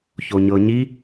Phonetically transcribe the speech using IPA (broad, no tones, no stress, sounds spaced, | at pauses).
ç o ɲ ɤ ɲ i